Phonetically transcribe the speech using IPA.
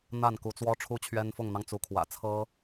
n̪ a˥˨ n k u˨˦ t͡s w ɔ˦ ʈ͡ʂʰ u˦ t͡ɕʰ ɥ ɛ˦ n f ʊ˥˨ ŋ n̪ ɑ˦ ŋ t͡s u˨˦ kʰ w ä̰˨˩ t͡sʰ ɤ˦

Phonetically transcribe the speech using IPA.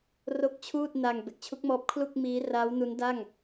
r o˥˩ k̚ t͡ɕʰ uː˥˩ t̚ n a˧ ŋ b e˨˩ k̚ t͡ɕʰ u˦˥ k̚ m ɔː˦˥ p̚ kʰ l u˥˩ k̚ m iː˦˥ r aː˦˥ w n u˦˥ n d a˥˩ ŋ

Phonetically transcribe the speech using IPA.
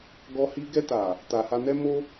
ɡ ɔ˧ h i˧ ɡ ɛ˧ t a˨ | t a˨ h a˧ n ɛ˦ m o˦

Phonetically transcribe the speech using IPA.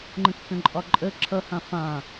ŋ͡ǃ ə̃ kː ə̃ ǃʼ ɒ ǃʼ ə ǁʰ ʌ h ã f ã

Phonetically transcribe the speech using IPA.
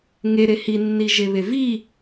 ŋ e ɾ e h i nː i ʒ e β e v i

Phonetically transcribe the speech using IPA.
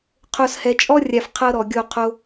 qʰ o˨ s h ɛ˨ t͡ʃʼ ɔ˦ rʲ a˨ f qʰ ɤ˦ ɾ ɔ˨ ɡʲ o˦˨ qʰ o˦

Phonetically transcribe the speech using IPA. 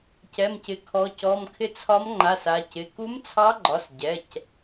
c ɛ˩˧˩ m c ɪ˩˧ kʰ ɔ˩˧ c ɔ˩˧˩ m kʰ ɪ˧˥ t͡sʰ ɒ˧˥ m ŋ͡ǃ a˩˧˩ s a˩˧ c ɪ˩˧˩ k u˧˥ m t͡sʰ ɑ˧˥ ɡ͡ǃ ɒ˩˧˩ s ɟ ɛ˩˧˩ c

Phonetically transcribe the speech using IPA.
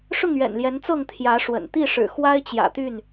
ʂ ʊ˥˨ ŋ ɥ ɛ̰˨˩ n l j ɛ˨˦ n t͡s ɤ˥˨ ŋ t̪ʰ j ä˨˦ ʂ w ə̰˨˩ n t̪ i˥˨ ʂ ɻ̩˨˩ x w a˦ ɪ̯ t͡ɕ j ä̰˨˩ t̪ y˥˨ n

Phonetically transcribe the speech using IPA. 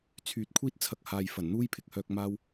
t͡sʰ yː˨˥ t̚ kʷʰ iː˥ t̚ t͡sʰ ɐ˧ k̚ h aː˨ j f ɐ˨˩ n n̪ uː˥ j pʰ ɪ˨ k̚ h œː˧ k̚ m aː˧ w

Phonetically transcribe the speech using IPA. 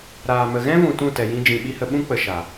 ɾ aː˨ m ə˨ ɣ ɛ̃˦ v ũ˨ t ũ˦˨ t ɛ˨ j ĩ˦ d͡ʒ ĩ˨ ɓ i˦ h ə˧ ɓ ũ˦ k͡p ə˨ ʃ a˨

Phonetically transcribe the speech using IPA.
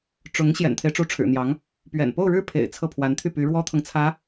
ʈ͡ʂ ʊ˧˥ ŋ ɕ j ɛ̰˨˩ n t̪ʰ e˦ ɪ̯ ʈ͡ʂ u˧˥ ʈ͡ʂʰ ɻ̩˨˩ n̪ j ɑ˧˥ ŋ | p ɥ ɛ̰˨˩ n p o˥˧ ʊ̯ ɻ ɻ̩˥˩ pʰ ḛ˨˩ ɪ̯ t͡sʰ ɤ˥˩ pʰ w a˧˥ n t̪ʰ y˥˩ p y˧˥ ɻ w ɔ˥ t̪ʰ ɤ˨ ŋ t͡sʰ ä˧˥

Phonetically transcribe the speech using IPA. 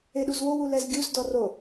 e ɗ u z w o w u l ɛ z ɡʲ u z d ɔ r o

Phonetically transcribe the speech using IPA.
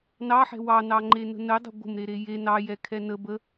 n ɑ ħ ɛ̤ w ɑ n ɑ ŋ͡ǃ e n ə̤ n ə dˤ ə̤ ɡʷ ə̤ m ɾ e ɾ e j e n ɑ j ɛ kʰ ɛ n ə b ə

